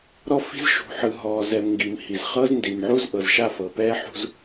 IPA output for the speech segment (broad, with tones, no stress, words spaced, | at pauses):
ɾɔ˦fi̤˦z ʃṳ˨ħɯ˨ ɦɔː˨zɛ˨m ŋɡi˨mhi˨z χɤ˦zndi˨mʕu˦z ʔɤ˨zʃa˦˨fɤ˨ pɛː˦ħṳ˦z